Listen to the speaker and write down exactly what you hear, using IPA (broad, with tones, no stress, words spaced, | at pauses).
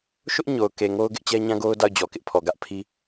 ʃʊ˦ʔ ɲo˨ʊ̯ke˨ŋo˦ʊ̯ ɡɪ˦ʔt͡ɕɛ˦ɲã˦ɡo˦ʊ̯ da˦˨ʊ̯d͡ʑɔ˨kɪ˦ʔpʰɔ˨ ɡä˦ʔpʰi˦